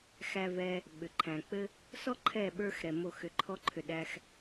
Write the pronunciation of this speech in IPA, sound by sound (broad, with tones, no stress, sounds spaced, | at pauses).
x æ˧ v ɛ˧ | ɓ ʏ˨ ǃʰ æ̃˨ k͡p ɘ˦ | s ɔ˦ ǃʰ ɛ˦˨ ɓ ə˞˦ x ɾ ɛ˧ m o˦˨ x ʏ˧ ǃʰ ɔ˦ ǃʰ ʏ˧ ɗ æ˧ x